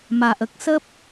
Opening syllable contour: low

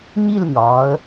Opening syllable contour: falling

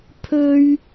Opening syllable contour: high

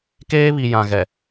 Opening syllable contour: high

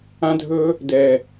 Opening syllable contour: high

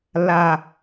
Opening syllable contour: low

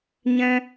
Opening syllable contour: high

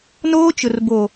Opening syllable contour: high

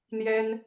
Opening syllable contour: high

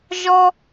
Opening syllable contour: high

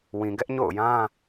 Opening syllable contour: low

